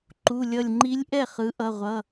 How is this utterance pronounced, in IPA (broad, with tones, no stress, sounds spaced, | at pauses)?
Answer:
ǃ u˩˧˩ lʲ ʌ˧˩ lʲ ŋ͡ǃ i˧˥ lʲ ʔ ɛ˥˩ χ ɯ˩˥ ʔ ʌ˩˧˩ ʁʷ ʌ˩˧˩